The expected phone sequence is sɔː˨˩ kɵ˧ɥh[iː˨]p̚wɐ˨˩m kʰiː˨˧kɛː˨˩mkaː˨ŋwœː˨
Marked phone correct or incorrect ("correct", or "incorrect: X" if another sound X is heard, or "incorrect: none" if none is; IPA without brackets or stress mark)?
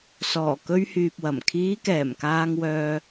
incorrect: yː˨